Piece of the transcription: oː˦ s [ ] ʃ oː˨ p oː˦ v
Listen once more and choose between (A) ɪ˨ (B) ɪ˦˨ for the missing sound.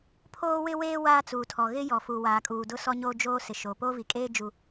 A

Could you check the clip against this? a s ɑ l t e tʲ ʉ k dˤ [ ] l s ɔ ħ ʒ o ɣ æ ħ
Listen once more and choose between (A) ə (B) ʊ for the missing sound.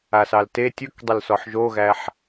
A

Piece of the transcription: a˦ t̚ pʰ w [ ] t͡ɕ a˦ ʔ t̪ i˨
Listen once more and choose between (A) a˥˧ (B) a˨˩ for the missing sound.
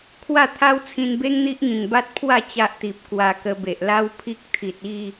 A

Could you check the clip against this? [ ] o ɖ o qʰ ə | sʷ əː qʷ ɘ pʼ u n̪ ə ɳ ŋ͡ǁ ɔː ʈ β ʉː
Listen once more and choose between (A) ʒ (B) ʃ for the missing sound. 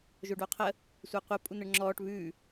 A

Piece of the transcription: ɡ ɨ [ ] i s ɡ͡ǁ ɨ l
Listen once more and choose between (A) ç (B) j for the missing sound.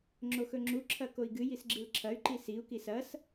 B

